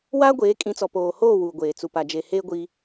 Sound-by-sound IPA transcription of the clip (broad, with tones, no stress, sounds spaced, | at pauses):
w aː˦ ɡʷ eː˨˦ kʼ ĩ˨˦ t͡s ɔ˨ p oː˨ h oː˦˨ w uː˨ ɡʷ eː˨ t͡s u˨ p a˨ d͡ʒ e˨ h eː˦ ɡʷ i˦